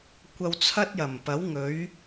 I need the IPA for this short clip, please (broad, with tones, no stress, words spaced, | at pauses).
kʷɐ˧wt͡sʰɐ˥t̚jɐ˨˩mpɐ˨˥w ŋɵ˨˥ɥ